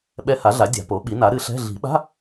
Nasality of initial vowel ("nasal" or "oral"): oral